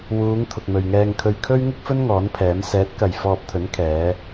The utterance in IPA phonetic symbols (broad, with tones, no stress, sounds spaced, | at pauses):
w uː˨˧ ŋ t̪ʰ ʊ˨ k̚ m ɵ˨ ɥ ŋ ɛː˧ ŋ kʰ ɵ˧ ɥ kʰ ɵ˥ ɥ ŋ ɪ˥ k̚ f ɵ˥ n ŋ ɔː˨˥ n pʰ ɛː˨˥ m s ɛː˨˥ t̚ k ɐ˨ j f ɔː˧ p̚ t̪ʰ ɵ˨˥ n kʰ ɛː˨˧